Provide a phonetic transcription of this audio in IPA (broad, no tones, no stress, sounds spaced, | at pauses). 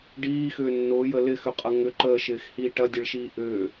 ɖ iː x ʏː nː ʊː j ə l ɪ x ʏ qʼ ɐ ŋ ʏ ǃ əː ʃ ɪː x h iː ʈ ɐ dʲ ə ɭ ʃ iː ʔ ʏː